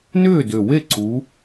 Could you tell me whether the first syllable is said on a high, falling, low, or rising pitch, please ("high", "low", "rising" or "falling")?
falling